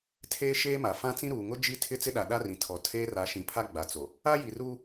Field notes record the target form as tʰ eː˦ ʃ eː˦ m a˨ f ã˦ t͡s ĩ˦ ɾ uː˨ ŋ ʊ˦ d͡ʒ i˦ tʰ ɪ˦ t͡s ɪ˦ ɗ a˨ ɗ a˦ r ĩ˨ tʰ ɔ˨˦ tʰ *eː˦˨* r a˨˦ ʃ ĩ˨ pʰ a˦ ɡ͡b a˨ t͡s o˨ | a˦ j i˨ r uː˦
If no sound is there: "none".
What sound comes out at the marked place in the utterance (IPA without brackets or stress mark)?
eː˦